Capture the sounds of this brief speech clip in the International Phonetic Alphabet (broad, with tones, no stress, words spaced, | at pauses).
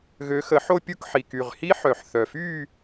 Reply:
ɣø˨˦xə˨˩˦ ħo˥˧pʲu˥˧kħi˨˩ ky˨˩ʁhi˦˥ ħœ˨˩˦ħθœ˨˩fy˥˧